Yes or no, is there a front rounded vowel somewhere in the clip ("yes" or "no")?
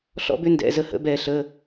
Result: yes